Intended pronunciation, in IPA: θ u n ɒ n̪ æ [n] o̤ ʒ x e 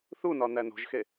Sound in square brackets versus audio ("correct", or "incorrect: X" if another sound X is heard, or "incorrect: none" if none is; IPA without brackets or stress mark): correct